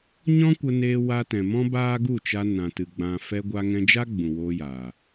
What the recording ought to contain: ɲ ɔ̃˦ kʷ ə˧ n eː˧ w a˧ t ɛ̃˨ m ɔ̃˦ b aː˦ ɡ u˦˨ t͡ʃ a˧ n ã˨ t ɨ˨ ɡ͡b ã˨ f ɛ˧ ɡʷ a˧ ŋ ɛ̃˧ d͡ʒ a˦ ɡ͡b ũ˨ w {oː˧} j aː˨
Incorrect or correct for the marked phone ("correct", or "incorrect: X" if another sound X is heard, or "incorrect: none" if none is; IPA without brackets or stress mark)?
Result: correct